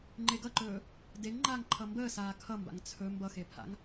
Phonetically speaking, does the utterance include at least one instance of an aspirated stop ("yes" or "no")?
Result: yes